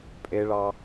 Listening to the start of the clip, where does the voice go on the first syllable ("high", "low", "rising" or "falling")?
low